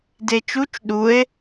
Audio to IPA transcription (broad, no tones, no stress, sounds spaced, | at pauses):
d e t͡ʃ u t͡ʃ ɗ u e̯